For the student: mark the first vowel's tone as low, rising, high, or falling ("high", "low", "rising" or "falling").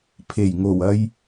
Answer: low